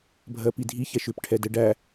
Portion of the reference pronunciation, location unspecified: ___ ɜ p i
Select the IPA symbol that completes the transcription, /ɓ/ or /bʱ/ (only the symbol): bʱ